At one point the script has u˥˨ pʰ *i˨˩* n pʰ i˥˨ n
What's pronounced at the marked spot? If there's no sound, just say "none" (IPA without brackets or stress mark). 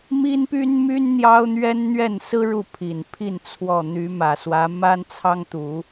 i˨˩